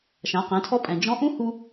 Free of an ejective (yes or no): no